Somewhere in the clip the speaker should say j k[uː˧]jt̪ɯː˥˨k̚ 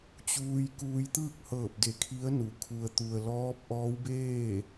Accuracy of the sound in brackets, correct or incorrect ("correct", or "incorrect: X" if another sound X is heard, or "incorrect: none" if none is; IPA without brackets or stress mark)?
correct